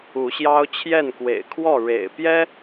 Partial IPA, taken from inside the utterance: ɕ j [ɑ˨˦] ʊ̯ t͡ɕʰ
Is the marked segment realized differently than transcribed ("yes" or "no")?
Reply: yes